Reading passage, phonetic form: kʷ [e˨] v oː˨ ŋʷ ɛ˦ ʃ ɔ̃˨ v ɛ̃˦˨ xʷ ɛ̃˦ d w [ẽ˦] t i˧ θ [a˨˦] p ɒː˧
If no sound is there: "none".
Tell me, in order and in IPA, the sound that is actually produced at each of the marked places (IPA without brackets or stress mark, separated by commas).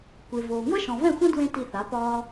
e˨, ẽ˦, a˨˦